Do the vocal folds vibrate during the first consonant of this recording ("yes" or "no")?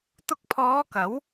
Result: no